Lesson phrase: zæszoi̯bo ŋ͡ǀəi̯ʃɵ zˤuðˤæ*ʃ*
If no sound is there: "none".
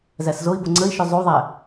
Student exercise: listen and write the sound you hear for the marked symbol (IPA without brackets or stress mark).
none